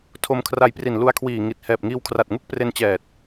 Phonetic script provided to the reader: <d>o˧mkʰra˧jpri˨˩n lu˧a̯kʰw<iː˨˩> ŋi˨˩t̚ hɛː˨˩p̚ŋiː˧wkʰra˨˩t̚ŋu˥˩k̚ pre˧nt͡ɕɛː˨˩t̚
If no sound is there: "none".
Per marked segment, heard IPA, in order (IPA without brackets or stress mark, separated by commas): tʰ, iː˨˩